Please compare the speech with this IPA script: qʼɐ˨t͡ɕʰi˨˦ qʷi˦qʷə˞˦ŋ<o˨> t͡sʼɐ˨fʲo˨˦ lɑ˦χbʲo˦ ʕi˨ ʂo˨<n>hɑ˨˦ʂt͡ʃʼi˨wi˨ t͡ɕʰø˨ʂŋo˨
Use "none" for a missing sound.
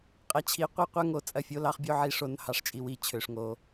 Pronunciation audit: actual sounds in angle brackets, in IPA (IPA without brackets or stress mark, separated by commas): o˨, n